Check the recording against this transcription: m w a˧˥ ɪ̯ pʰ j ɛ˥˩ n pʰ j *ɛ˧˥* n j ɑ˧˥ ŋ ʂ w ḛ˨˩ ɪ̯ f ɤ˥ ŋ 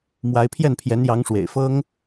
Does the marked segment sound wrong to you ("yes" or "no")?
no